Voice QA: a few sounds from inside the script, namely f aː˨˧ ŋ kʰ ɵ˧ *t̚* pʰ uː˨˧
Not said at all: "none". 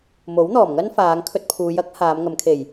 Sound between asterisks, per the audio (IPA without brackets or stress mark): t̚